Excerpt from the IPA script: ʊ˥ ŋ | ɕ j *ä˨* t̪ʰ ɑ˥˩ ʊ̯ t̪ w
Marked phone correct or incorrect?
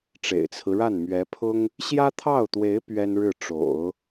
incorrect